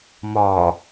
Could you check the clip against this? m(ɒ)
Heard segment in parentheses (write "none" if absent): ɒ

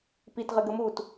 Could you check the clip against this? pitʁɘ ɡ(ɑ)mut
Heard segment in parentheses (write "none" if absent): ə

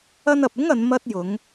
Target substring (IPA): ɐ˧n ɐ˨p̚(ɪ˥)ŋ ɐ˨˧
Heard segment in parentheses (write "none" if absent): ɪ˥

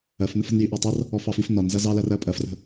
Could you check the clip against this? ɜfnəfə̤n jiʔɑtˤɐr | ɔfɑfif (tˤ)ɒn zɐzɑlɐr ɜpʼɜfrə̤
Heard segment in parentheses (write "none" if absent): n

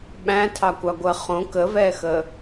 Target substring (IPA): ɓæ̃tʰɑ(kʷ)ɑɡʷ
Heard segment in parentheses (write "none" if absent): kʷ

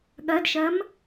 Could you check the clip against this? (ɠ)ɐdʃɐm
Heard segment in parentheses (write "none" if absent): ɠ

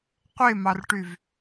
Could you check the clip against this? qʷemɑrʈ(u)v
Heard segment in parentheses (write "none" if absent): y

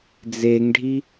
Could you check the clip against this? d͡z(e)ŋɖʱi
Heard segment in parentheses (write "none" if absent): e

